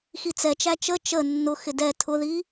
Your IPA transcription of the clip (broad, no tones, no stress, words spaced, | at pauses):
xit͡sɛt͡ʃæ t͡ʃə t͡ʃə nːʊxɪ dɛ tʰʊði